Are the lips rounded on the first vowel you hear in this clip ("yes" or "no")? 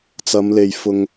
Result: no